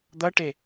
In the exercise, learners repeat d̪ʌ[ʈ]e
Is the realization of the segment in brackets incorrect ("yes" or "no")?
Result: no